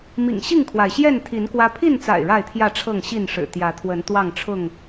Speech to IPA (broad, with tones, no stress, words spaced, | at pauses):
mḭ˨˩ŋ ɕi˥˨ŋkʰwa˩ɪ̯ɕjɛ˥˨n t̪ʰi˨˦nkwä˦ pʰi˥˨nt͡sa̰˨˩ɪ̯ ɻa˥˨ɪ̯t̪ʰjä˥˨ʈ͡ʂʰɤ˥˨ŋ ɕi˥˨nʂɻ̩˨˩t̪jä˨˦ t̪ʰwə˨˦nt̪wɑ˥˨ŋʈ͡ʂʰʊ˥˨ŋ